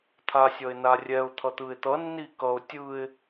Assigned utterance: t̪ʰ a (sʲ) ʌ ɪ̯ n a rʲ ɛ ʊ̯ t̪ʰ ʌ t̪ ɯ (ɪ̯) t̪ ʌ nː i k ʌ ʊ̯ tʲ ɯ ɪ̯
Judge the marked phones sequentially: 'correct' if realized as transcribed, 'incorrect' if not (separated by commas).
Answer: correct, correct